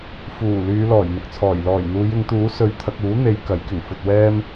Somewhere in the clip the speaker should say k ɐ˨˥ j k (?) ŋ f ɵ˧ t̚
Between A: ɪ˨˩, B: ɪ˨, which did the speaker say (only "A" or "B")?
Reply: A